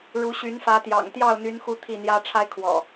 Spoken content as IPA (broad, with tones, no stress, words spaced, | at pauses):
ɻu˨˦ɕy˨˦nfä˨˦t̪jɑ̰˨˩ŋ t̪jɑ˥˨ʊ̯n̪y˨˦n xu˦t̪ʰi˥˨n̪jä˦ ʈ͡ʂʰa˦ɪ̯kʰwɔ̰˨˩